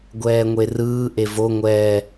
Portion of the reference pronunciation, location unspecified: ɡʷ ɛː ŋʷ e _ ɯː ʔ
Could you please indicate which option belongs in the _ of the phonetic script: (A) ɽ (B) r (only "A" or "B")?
B